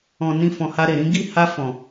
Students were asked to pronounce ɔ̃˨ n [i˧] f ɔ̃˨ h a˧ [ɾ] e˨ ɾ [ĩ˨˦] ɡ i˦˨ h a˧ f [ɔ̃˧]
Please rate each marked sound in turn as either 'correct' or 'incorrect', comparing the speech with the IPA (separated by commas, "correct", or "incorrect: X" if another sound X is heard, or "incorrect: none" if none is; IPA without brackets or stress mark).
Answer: incorrect: ĩ˧, correct, correct, incorrect: ɔ̃˨